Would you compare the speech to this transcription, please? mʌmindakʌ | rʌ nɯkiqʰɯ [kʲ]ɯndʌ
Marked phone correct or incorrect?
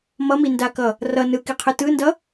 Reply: incorrect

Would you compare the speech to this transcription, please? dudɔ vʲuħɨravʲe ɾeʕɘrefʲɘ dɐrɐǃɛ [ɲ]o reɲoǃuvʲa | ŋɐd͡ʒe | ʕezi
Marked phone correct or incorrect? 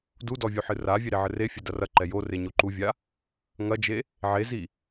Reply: incorrect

